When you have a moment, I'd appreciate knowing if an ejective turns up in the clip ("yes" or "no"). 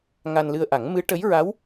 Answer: no